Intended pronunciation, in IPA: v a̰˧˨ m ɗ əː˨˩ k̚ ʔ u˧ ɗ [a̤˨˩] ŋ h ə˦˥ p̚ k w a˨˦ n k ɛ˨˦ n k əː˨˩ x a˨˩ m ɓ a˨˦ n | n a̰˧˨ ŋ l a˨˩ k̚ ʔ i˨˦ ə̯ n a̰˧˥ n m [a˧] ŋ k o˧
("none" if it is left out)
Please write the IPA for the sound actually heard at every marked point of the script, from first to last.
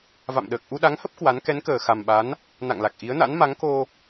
a˨˦, a˨˦

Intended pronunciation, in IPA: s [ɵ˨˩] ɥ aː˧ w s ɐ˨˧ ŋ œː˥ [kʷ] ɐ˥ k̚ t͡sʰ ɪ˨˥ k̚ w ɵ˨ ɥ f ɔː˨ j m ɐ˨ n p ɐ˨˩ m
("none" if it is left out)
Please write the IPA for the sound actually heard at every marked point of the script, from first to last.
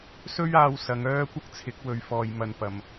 ɵ˥, kʷ

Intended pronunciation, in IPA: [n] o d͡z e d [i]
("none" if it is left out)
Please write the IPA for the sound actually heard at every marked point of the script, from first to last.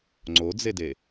ŋ͡ǀ, e

